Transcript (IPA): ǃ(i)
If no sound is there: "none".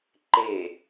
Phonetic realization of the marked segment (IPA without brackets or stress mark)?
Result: e